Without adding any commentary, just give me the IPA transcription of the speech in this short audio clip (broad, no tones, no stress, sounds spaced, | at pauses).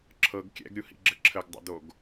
ǁʰ ɤ ɡ kʲ ɛ̰ ɡ ɾʲ u h ḭ ɡ͡ǁ ə ǁʰ ə ɡ dˤ o̰ d o ɡ